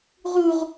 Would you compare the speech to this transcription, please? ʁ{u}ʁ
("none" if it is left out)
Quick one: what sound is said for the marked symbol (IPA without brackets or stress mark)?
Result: u